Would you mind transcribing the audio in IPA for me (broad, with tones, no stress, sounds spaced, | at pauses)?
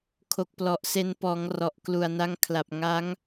kʰ o˨˩ k̚ p l ɔ˨˩ ʔ s e˧ n p ɔː˩˦ ŋ r ɔ˨˩ ʔ k l u˨˩ a̯ n a˧ ŋ kʰ l a˨˩ p̚ ŋ a˦˥ ŋ